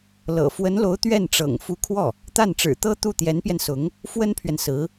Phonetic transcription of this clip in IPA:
l ɤ̰˨˩ f w ə˧˥ n l o˧˥ ʊ̯ t̪ ɥ ɛ˥˩ n ʈ͡ʂ ɤ̰˨˩ ŋ f u˧˥ kʰ w ɔ˥˩ | t̪ a˥˩ n ʈ͡ʂ ɻ̩˨˩ t̪ ɤ˥ t̪ u˥˩ t̪ j ɛ˧˥ n p j ɛ˧ n s ʊ˧˥ ŋ | f w ə˥ n pʰ ɥ ɛ˨ n s ɹ̩˧˥

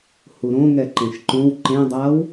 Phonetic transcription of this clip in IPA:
h u ɾ õ ŋ ɛ ǃ ẽ ʃ ǃ õ w ǃ ẽ dˤ a w

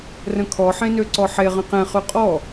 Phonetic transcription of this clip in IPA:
r ə̃ kʰ ɔ ħ ẽ n ø ǀ ɔ ħ e ʁ ə̃ q ẽ χ ʉ qʼ ɔ

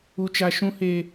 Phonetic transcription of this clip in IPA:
u˦ t͡ʃ a˦ ʃ ũ˦ h e˦

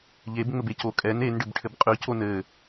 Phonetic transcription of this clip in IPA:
ʎ e b ŋ͡m ɘ b e c o kʼ ɛ n e n ɖ ɘ b ʈʰ ɘ b qʼ ʉ c o n ɘ

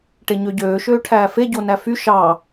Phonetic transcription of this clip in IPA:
ʈ e ɲ ø ɟ øː ʃ øː ʈʰ æː f e ɟ o n æ f y ʃ ɑ

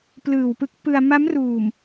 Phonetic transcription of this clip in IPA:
p l ɯː˨˩ w p ɯ˦˥ k̚ p ɯ˧ a̯ m a˦˥ m r uː˨˩ m

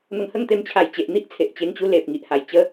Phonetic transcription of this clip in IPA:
n̪ ə˧ ŋ h ə˥˧ ŋ t̪ e˧ m t͡ɕʰ a˨˩ j t͡ɕ e˨ ʔ n̪ i˦ ʔ t͡sʰ e˨ ʔ t͡ɕ e˧ ŋ t͡ɕ u˦ l e˨ p̚ ŋ i˦ ʔ h a˨˩ j t͡ɕ ə˦

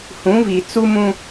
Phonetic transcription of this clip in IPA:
h ũ˨˦ v i˨ t͡s u˦ m ũ˦

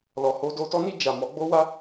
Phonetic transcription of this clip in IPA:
l ɔ˧ h o˦ d o˦ t ɔ˦ n i˦˨ d͡ʒ a˨ m ɔ˨˦ ɡ͡b o˦ w a˦

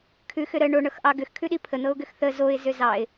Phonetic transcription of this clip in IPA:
kʰ ʉ x ʏ ɾ ə ɳ o ɳ ɤ x ʔ ɑ ɡ ʏ x kʰ ʉ ɗ i pʰ ə n̪ ɤ ʊ̯ ɡ ʏ x θ ə z o ɪ̯ z ʏ z ɑ ɪ̯

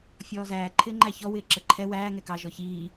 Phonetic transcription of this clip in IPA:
fʲ ɔː z æː ǃʰ ɪː ŋ͡ǃ æ ç ɔ w ɪː ǁ ə ǃʰ ɛ w æː ŋ ɛ k ɑ ʒ ɔ ç iː

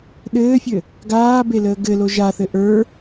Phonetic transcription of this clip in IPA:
ɗ ɘː fʲ ɘ | ɡ aː b e l əː ɡ ɘ l o ʒ a θ ɘ ʔ ə˞

